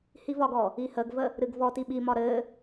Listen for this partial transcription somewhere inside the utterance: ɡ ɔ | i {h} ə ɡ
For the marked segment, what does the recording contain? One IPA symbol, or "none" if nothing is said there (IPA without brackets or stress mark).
h